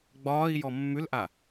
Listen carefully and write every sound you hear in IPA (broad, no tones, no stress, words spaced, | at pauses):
ɡ͡bɒːi̯ jɔmːʉlʔa